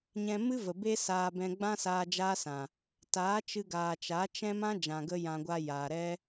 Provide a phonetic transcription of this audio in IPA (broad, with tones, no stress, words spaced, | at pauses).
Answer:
ɲɛ̃˧mɨ˦və˨ be˦saː˧ bɛ̃˧ɡ͡bã˦saː˧ d͡ʒaː˦sã˨ | taː˨˦t͡ʃɨ˧ɡaː˨t͡ʃa˨˦ t͡ʃɛ̃˦mã˦ d͡ʒã˨ɡə˧ jã˨ɡʷa˧ jaː˨ɾɛ˦